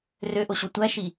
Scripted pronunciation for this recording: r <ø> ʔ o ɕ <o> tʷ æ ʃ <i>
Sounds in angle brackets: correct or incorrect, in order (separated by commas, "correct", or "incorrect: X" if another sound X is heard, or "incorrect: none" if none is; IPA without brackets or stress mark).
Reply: correct, correct, correct